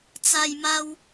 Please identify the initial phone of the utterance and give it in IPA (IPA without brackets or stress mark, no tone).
t͡s